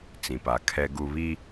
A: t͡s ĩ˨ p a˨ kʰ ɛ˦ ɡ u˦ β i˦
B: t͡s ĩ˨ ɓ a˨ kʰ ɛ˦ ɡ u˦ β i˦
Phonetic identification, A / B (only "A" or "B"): A